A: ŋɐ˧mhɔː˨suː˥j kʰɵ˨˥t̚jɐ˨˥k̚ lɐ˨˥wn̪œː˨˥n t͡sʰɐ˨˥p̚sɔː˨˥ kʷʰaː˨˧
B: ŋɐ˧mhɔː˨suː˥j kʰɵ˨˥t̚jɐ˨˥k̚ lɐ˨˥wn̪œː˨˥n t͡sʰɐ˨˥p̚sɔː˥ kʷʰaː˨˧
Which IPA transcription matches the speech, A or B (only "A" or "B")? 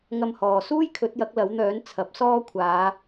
B